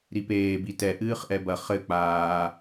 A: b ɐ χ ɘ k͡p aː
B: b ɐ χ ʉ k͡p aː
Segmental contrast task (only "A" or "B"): A